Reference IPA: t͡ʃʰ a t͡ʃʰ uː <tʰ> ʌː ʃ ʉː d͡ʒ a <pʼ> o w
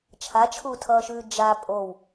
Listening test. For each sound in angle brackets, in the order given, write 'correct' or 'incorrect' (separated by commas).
correct, correct